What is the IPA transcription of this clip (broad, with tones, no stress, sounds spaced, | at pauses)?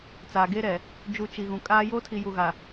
t͡s aː˨ ɡ e˦ ɾ ɛ˨ | d͡ʒ u˨ t͡ʃ i˨ ɣ ũ˨ kʼ aː˦ j oː˦ tʰ i˨ j u˨ ɣ a˨